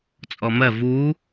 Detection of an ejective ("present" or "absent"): present